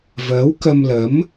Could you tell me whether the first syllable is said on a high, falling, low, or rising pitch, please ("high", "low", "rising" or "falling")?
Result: rising